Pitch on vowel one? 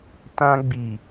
high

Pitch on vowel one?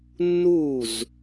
falling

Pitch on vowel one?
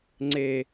low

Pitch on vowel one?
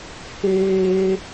high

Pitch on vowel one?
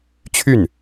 falling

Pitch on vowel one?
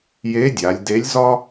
rising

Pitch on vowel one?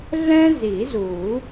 high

